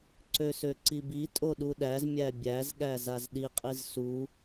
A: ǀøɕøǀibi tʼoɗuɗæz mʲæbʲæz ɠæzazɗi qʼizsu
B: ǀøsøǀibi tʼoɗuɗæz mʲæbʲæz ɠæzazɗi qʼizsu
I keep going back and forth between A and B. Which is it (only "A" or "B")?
B